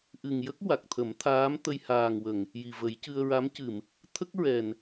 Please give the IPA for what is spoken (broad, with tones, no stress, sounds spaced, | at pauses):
ʔ ɨ˨˩ ŋ j ə˦˥ k̚ w a˨˩ k̚ t̪ʰ ə˨˩˦ m t̪ʰ aː˧˥ m t̪ ə˧ j h aː˨˩ ŋ w ə˨˩˨ ŋ | j i˨˩ v ə˨˩˦ j c ɨ˧ ə̯ ɹ a˧˥ m c ɨ˨˩˨ m | t̪ʰ ə˦˥ k̚ ɹ ɛ˨˩ n